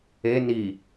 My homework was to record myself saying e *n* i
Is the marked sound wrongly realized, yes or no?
no